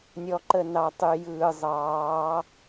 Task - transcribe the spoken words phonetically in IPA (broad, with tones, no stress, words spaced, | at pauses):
nʲɔ˨ǃə˨ nɑ˨tˤy˨jɯː˨ zˤɑː˨˦